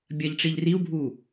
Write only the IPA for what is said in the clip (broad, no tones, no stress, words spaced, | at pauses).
bʲɐʎʈ͡ʂiʎ riu̯bʱu